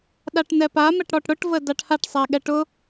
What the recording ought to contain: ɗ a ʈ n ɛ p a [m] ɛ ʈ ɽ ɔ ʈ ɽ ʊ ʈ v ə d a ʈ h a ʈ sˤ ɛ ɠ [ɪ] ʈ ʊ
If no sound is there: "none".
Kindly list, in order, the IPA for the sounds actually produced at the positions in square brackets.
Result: m, ɛ

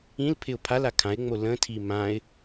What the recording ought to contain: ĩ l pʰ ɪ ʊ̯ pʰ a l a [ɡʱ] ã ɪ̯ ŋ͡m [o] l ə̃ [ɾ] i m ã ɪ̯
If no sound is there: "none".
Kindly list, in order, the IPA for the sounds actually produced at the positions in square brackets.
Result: kʰ, o, tʰ

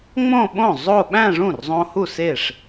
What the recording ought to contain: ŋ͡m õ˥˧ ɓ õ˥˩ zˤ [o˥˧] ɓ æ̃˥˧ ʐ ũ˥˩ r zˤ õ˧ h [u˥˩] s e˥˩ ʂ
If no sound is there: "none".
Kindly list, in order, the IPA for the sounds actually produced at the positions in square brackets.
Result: o˥˧, u˥˩

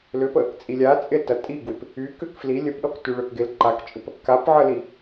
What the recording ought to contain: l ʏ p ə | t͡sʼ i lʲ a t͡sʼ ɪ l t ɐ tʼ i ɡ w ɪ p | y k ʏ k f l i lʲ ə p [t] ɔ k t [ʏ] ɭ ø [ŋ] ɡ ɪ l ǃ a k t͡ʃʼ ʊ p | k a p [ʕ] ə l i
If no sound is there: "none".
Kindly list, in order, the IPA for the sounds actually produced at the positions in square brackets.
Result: ɗ, y, k, ʕ

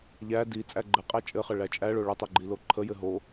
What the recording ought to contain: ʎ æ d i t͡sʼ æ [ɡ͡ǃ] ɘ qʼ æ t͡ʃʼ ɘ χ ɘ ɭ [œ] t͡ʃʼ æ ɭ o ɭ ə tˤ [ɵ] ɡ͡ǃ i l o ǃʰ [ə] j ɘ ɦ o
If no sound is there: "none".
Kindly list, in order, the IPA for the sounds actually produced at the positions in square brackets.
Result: ɡ͡ǃ, æ, ɵ, ə

